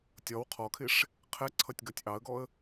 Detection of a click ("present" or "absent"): present